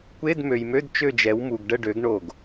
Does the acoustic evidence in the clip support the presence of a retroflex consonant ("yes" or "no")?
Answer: yes